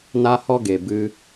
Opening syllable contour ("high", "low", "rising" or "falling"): high